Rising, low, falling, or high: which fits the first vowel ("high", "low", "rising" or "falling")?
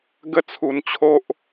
falling